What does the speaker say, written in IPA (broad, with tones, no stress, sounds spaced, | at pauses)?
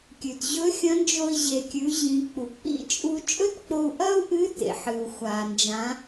kʲ ʉ˩ t ʑ ɵ˧˥ xʲ ɐ̃˧˥ n d͡ʒ o˧ i̯ ʑ e˩ kʲ ʉ˩˧ ʑ ĩ˩˧ k͡p u˩ k͡p ḭ˥ t͡ʃʼ u˥ t͡ʃʼ ɵ˥ t k͡p o˧ u̯ ʔ ɐ˥ u̯ ʔ ɨ˧˥ t ḛ˩ ħ ɨ˩ u̯ xʷ a˩ n d͡ʒ ã˩˧